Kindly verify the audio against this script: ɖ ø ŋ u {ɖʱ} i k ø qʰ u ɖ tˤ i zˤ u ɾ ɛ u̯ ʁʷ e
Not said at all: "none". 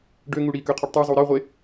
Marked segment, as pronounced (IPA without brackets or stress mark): ɽ